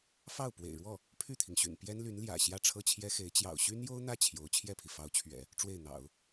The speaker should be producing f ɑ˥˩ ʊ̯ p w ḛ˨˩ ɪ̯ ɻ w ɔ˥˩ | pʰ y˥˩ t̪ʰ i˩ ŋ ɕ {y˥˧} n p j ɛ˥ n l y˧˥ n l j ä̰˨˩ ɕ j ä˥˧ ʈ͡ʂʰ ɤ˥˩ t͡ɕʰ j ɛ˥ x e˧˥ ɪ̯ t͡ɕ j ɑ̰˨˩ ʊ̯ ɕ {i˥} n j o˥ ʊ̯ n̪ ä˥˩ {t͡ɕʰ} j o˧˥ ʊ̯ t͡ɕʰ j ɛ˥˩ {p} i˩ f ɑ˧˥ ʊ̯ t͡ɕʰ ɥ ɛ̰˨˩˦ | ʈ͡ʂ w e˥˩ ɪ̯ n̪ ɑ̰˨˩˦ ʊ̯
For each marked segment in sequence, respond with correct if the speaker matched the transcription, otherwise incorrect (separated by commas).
incorrect, incorrect, correct, incorrect